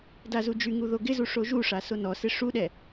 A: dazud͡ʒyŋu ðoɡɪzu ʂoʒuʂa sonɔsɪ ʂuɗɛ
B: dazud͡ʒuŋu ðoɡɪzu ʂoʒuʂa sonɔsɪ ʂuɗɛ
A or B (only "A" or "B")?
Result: A